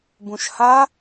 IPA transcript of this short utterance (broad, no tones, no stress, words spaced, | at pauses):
bũʃha